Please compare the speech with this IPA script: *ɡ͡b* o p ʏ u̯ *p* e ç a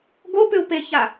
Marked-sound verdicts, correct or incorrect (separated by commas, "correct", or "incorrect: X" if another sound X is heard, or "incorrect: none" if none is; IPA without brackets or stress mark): incorrect: ɡ, correct